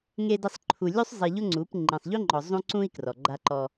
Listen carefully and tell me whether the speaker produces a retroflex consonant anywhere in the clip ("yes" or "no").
no